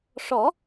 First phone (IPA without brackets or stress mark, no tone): ʂ